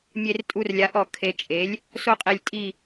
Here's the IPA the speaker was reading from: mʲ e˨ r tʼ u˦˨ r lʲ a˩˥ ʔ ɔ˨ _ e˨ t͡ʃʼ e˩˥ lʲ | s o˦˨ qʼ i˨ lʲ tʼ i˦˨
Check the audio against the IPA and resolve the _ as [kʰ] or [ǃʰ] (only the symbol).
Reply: kʰ